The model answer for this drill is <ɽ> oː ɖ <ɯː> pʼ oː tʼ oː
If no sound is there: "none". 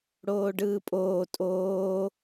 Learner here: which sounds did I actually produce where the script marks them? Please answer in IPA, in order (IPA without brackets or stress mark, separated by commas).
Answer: ɽ, ɯː